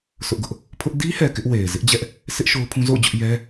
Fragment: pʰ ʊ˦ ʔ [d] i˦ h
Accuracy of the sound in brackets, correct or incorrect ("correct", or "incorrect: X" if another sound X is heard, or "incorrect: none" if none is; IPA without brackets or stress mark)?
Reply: correct